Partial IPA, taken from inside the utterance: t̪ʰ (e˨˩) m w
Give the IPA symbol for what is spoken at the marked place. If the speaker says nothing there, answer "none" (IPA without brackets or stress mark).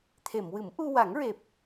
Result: e˨˩˨